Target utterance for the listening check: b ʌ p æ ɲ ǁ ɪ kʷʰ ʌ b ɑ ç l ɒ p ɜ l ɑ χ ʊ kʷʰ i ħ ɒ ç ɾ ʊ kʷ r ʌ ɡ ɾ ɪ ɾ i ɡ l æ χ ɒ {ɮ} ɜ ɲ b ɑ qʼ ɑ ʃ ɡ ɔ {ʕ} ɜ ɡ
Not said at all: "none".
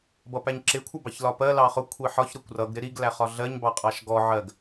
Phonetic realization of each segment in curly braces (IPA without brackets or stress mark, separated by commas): ɮ, ʕ